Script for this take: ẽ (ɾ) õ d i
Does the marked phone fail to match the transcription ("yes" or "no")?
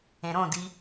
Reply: no